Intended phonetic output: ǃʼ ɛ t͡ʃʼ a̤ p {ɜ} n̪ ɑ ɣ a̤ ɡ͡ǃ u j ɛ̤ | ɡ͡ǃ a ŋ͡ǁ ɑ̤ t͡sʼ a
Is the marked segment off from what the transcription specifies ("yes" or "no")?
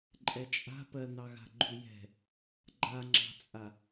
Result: no